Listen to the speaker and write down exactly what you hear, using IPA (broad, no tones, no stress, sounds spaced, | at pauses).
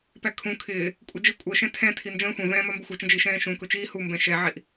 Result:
p æ kʰ ũ kʰ ɪː | kʷʼ ə d͡ʒ ɪ kʷʼ ɜ ʃ ɛ̃ tʰ ɛ̃ tʰ i n d͡ʒ ə̃ː xʷ ɛ̃ v ɛ̃ː m ɒ m b ɪ xʷ ɛ t͡ʃ ə̃ d͡ʒ i ʃ ɛ̃ː ʃ ũ k ʊ t͡ʃ iː h u m b ɛ̃ ʃ ɛ ʕ i ʔ